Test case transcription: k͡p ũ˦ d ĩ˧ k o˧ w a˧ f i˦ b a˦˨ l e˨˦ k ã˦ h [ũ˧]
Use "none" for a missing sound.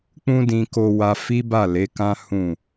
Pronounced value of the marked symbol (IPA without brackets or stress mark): ũ˦˨